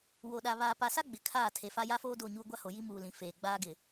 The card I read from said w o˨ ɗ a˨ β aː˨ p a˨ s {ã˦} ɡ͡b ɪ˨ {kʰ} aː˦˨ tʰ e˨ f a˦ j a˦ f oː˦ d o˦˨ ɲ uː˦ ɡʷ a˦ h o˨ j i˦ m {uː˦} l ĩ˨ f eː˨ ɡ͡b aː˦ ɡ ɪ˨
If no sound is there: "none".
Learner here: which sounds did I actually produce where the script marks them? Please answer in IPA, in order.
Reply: a˦, kʰ, uː˨

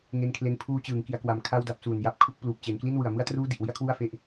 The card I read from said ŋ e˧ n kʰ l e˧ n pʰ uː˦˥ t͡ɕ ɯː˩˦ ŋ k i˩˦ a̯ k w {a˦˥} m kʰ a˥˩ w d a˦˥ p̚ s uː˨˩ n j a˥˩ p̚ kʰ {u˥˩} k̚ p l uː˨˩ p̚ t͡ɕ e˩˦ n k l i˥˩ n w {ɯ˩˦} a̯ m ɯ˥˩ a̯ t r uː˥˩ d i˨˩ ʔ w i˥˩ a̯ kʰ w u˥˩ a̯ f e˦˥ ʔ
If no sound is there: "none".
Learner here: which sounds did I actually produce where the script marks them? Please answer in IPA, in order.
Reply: a˨˩, u˥˩, ɯ˨˩

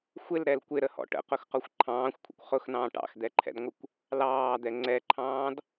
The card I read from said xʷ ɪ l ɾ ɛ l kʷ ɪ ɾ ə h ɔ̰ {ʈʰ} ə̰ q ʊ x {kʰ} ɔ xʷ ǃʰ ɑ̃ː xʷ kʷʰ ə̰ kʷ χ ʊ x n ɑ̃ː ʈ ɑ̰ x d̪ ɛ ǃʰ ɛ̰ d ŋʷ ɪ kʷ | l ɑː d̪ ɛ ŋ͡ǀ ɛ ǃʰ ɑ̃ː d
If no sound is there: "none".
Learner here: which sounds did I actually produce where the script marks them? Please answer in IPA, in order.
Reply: ʈ, q

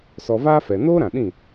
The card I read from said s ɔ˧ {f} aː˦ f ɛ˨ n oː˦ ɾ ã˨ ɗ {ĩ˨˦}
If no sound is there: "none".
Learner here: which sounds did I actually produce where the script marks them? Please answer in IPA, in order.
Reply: v, ĩ˦˨

